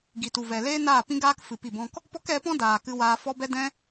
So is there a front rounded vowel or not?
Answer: no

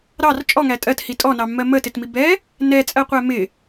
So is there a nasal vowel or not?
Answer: no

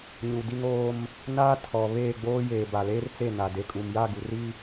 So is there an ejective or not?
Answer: yes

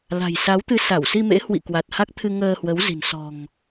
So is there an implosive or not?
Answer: no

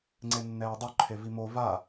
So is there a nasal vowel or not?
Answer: no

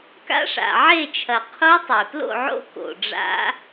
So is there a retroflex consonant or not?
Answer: yes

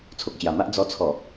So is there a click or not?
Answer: no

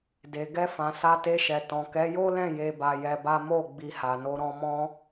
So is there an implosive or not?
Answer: no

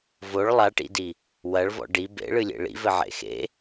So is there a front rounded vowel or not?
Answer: no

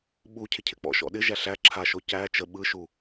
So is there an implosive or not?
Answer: yes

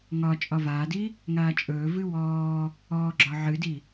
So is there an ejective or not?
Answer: yes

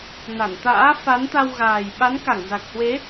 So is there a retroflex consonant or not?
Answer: no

